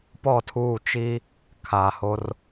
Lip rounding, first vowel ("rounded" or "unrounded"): rounded